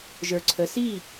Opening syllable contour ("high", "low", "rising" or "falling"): low